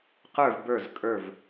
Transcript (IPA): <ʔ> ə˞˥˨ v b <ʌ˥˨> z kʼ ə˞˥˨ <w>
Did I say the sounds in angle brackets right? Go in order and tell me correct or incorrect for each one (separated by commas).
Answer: incorrect, incorrect, incorrect